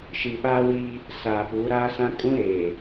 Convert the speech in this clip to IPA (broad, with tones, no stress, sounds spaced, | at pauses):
ʃ i˨ ɓ aː˦ w iː˦ | s aː˨ p uː˨˦ ɾ aː˦ s ã˦ kʼ ũ˦ ɾ eː˨